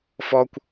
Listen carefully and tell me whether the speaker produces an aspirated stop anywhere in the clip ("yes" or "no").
no